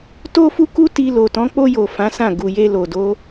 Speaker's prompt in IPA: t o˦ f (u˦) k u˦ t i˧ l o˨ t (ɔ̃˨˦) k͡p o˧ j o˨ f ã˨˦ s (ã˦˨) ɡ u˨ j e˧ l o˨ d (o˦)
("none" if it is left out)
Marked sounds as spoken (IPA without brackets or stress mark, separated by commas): u˦, ɔ̃˨˦, ã˦˨, o˨˦